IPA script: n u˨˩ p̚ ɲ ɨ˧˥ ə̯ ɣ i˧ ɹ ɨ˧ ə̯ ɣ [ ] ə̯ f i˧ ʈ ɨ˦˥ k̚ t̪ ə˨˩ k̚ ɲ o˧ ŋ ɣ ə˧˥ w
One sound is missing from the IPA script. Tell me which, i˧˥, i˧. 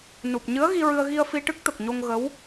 i˧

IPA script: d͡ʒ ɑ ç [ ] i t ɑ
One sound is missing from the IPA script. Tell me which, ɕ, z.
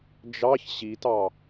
ɕ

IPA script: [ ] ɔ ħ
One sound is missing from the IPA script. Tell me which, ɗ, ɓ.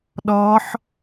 ɗ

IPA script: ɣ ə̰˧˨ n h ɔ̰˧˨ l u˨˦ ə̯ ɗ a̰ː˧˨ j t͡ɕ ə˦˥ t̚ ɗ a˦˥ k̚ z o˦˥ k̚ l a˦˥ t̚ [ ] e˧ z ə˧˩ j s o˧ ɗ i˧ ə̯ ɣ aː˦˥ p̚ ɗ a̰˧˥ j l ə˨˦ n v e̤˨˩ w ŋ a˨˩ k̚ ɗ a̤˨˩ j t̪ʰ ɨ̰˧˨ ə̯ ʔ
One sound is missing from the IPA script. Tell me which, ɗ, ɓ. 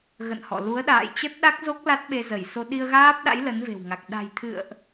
ɓ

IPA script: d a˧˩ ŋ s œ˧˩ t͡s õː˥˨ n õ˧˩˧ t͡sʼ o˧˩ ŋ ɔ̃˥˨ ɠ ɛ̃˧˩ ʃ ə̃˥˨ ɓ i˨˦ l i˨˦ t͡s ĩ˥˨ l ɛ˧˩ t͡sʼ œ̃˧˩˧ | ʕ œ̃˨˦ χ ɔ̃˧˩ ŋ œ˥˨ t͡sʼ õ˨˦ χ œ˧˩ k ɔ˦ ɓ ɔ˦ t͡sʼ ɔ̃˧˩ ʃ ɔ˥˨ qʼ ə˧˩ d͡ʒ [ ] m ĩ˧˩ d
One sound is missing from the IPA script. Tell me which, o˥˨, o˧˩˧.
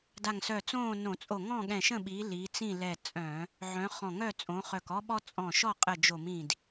o˧˩˧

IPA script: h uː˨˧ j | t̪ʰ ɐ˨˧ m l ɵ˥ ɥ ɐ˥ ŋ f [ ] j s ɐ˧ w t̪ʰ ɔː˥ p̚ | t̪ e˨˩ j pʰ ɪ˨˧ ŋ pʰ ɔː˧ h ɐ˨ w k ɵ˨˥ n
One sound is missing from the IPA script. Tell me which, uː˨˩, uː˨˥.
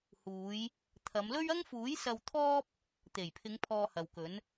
uː˨˥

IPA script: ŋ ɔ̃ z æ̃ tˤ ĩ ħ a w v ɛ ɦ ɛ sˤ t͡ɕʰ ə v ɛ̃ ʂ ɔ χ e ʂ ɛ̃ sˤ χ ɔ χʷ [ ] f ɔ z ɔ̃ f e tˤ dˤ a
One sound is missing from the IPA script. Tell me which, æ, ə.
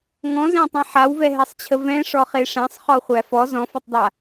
æ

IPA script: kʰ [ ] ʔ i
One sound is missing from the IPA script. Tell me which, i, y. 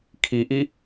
i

